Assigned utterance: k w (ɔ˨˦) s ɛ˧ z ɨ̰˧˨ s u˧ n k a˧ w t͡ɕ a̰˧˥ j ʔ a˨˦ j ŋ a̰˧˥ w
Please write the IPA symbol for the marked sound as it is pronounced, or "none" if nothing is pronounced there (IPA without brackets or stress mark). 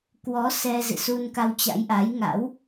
ɔ˨˦